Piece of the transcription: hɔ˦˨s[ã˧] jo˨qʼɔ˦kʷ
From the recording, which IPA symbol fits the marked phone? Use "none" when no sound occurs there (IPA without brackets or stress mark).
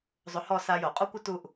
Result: a˧